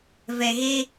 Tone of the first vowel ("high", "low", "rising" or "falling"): low